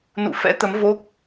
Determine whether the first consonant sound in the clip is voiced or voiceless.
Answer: voiced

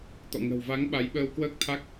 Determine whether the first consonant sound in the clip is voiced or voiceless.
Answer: voiceless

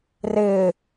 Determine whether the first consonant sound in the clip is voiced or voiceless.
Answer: voiced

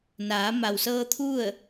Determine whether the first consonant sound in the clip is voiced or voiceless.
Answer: voiced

